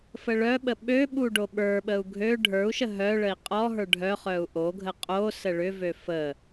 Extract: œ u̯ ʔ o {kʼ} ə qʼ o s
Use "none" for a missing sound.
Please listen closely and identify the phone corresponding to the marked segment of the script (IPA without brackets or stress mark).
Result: ɡʱ